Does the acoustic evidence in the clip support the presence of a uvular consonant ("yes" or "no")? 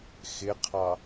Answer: yes